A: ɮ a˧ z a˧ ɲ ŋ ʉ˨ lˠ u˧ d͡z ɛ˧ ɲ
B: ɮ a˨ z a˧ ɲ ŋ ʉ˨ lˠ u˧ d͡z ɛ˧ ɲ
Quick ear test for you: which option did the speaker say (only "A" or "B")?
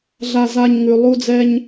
A